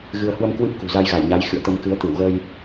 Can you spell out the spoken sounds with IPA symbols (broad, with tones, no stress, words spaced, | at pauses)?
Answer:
ɣɨ˧ə̯ hwə˧m kwɨ˦˥p̚kṳ˨˩ za˧jɣa˧˩jɲa˨˦j xɨ̰˧˨ə̯t̪ə˧m kɨ˨˦ə̯t̪ɨ˧˩w ɣəː˧j